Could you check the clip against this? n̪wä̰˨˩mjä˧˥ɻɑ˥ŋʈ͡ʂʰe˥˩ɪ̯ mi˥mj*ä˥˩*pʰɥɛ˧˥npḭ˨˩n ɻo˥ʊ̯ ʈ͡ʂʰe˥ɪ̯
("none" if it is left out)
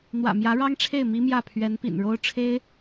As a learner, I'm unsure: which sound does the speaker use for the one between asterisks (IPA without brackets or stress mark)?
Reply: ä˥˩